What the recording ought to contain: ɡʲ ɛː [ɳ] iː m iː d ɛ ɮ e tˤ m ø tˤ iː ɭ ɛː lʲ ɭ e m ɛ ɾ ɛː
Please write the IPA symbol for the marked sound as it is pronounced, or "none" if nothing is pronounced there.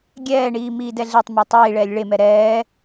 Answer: ɳ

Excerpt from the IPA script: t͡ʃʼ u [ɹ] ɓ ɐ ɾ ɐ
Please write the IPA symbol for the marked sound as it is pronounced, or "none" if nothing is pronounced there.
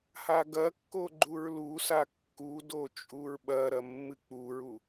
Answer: ɹ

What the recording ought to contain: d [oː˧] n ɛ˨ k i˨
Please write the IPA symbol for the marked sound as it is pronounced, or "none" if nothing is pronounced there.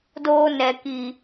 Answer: oː˧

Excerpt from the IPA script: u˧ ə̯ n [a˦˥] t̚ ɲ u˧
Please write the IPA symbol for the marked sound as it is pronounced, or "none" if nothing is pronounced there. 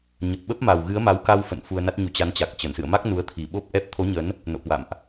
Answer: a˦˥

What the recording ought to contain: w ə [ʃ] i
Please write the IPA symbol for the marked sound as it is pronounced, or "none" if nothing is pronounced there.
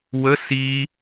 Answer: s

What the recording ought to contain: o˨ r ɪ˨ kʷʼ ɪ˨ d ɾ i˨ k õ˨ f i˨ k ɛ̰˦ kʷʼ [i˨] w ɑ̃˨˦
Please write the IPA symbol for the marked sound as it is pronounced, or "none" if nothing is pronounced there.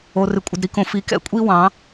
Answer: i˦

